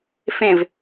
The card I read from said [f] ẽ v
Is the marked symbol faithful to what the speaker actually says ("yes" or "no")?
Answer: yes